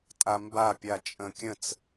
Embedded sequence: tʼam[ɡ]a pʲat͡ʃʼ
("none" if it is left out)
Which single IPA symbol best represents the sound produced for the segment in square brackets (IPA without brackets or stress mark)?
b